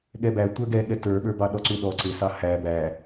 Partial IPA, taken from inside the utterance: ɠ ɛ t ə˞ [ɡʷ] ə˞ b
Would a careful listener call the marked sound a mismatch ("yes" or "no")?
yes